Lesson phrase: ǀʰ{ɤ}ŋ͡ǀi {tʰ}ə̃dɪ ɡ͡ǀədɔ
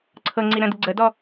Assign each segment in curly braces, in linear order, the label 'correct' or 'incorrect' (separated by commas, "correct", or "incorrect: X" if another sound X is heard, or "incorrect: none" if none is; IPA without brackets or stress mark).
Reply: correct, incorrect: ɾ